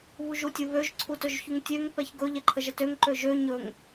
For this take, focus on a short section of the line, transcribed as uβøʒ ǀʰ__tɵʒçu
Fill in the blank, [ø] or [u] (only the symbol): u